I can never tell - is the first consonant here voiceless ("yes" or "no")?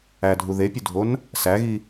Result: no